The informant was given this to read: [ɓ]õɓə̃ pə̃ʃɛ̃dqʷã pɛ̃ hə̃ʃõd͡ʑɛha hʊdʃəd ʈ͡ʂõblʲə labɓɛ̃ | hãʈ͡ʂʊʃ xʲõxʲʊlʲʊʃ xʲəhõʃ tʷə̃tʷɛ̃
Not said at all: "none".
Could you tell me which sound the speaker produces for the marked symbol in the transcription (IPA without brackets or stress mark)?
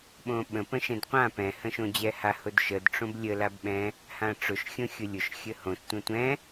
ɓ